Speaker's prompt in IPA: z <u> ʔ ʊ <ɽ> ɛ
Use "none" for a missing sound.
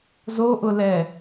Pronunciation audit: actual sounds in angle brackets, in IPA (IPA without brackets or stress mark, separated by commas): o, l